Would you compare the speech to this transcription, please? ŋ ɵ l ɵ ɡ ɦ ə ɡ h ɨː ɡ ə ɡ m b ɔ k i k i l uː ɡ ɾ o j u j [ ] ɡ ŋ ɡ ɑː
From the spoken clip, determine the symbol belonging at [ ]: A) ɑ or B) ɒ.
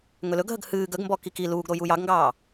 A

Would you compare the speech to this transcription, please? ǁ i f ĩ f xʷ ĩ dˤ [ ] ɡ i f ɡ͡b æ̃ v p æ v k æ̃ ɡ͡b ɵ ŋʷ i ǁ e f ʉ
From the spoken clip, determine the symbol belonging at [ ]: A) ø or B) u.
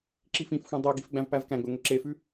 A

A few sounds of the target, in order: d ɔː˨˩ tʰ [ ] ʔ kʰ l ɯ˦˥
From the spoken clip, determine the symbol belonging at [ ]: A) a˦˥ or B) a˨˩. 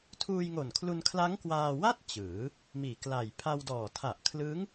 B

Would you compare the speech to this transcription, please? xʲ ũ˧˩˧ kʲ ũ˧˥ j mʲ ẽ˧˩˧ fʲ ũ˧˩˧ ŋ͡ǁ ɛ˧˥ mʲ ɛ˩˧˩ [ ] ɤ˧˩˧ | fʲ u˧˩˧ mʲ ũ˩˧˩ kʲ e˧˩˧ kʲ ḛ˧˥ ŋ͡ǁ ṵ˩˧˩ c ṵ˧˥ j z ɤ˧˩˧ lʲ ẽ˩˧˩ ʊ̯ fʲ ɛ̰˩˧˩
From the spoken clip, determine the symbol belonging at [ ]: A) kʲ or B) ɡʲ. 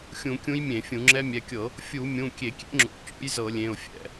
A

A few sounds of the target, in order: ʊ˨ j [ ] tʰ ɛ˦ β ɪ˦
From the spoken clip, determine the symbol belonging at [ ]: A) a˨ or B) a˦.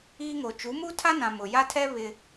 B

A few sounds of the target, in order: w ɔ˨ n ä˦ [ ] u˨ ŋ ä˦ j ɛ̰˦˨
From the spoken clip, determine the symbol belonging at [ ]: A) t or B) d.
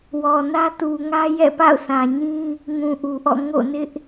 A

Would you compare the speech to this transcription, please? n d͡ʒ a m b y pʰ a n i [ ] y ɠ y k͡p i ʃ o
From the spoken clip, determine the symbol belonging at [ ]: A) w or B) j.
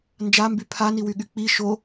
A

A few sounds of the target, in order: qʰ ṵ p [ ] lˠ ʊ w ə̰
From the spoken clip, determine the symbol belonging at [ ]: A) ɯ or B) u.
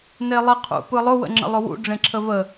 A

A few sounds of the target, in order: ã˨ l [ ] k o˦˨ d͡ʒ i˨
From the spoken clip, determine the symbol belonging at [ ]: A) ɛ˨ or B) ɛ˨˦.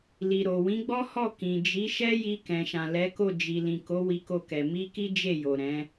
B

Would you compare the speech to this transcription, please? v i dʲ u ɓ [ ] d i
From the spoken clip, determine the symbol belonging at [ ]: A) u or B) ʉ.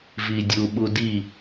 A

